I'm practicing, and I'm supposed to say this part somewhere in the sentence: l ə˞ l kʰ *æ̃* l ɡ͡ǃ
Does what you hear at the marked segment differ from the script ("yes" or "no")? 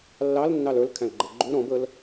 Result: no